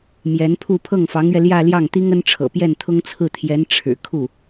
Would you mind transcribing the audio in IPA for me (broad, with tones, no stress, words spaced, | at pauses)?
mjɛ˧˥npʰu˥˧ pʰɤ˥˩ŋfɑ˧˥ŋɥɛ˧ ljä˥˧ljɑ˥˩ŋt̪i˥ŋ ə˥nʈ͡ʂʰɤ̰˨˩ pjɛ˥˩nt̪ʰʊ˥ŋt͡sʰɹ̩˥˩t̪ʰjɛ˧˥n ʈ͡ʂʰɻ̩˨˩kʰu˥˩